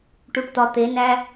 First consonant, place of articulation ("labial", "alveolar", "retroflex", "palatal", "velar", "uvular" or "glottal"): retroflex